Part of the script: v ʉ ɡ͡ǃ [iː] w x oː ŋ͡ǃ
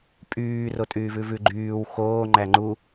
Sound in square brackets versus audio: incorrect: yː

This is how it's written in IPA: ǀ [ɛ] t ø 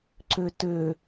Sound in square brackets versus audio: incorrect: ø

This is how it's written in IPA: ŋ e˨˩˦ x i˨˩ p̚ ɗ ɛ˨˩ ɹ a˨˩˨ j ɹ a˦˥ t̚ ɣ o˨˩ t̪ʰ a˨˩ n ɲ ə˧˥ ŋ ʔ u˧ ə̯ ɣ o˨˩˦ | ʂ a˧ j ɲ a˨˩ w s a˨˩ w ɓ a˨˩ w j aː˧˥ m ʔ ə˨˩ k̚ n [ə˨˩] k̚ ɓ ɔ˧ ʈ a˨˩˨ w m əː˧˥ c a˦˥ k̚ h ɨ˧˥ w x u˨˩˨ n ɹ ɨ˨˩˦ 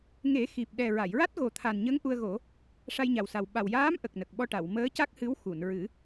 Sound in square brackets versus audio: correct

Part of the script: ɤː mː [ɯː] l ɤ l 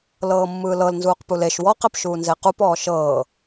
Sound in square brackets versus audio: correct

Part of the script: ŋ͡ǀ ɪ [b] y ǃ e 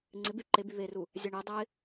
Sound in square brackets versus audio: correct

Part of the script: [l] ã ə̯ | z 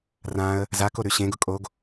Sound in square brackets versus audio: incorrect: r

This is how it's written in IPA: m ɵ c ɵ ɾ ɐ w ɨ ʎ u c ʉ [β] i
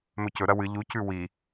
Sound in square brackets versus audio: incorrect: w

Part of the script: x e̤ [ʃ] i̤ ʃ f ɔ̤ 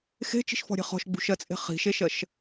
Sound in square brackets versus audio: incorrect: t͡ʃ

